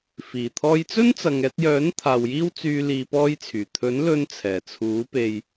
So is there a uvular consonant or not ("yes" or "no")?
no